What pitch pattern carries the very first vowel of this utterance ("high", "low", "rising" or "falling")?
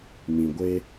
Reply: low